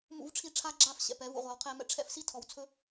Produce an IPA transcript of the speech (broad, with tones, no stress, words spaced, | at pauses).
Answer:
mṵ˦vʈ͡ʂʰi˦ ʈ͡ʂʰa˦ɡ͡ǁa˦˨f ɕɛ̰˨pɛ˨˦vṵ˧ ʁʷa˨wqʰɛ˧mɛ̰˧ ʈ͡ʂʰɛ̰˦fsi˦ tʰɔ˨wt͡sʰɵ˦